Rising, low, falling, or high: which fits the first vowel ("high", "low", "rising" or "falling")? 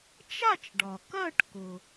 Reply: falling